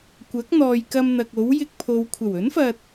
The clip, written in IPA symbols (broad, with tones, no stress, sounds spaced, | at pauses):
kʷ ɐ˨˥ k̚ n̪ ɔː˨ j k ɐ˧ m n̪ ɐ˨ k̚ o˨˥ w j ɪ˧ k̚ pʰ o˨ w kʷʰ ɐ˨˩ w ɵ˨˥ n f ɐ˨ t̚